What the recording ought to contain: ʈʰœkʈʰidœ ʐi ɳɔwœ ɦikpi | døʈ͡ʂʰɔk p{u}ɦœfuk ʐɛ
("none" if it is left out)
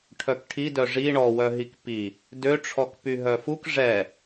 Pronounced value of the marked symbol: y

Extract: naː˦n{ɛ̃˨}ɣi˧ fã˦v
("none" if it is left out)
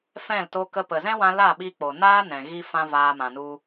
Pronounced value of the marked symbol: ɛ̃˨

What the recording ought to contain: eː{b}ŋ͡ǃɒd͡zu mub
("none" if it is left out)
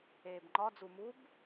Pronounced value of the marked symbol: b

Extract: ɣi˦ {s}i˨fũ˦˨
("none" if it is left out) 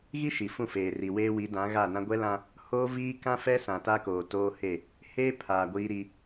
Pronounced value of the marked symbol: ʃ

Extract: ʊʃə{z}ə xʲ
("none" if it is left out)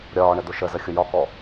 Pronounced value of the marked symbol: z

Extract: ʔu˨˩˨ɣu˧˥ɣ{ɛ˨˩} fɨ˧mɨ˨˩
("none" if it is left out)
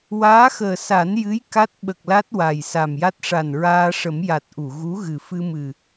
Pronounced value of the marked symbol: ɨ˨˩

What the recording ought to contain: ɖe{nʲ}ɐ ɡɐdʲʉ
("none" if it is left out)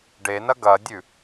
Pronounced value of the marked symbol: n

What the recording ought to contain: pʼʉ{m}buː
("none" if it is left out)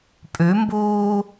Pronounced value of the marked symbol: m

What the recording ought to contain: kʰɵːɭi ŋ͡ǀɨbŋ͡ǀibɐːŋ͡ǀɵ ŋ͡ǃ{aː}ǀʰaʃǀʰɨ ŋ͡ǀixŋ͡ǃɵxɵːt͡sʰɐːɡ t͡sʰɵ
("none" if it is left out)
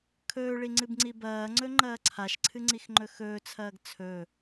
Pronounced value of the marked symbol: ɐː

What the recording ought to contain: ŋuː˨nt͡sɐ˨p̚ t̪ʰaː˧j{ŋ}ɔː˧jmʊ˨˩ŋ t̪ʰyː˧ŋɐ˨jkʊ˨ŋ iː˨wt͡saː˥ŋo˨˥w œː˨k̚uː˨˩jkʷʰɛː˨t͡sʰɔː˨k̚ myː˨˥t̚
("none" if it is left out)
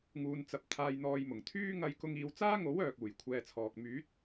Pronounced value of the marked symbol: n̪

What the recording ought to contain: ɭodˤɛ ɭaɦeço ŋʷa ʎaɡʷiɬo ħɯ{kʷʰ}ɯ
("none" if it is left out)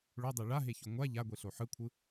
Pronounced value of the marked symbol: kʷʰ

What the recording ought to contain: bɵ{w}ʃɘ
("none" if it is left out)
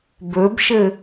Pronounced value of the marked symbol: b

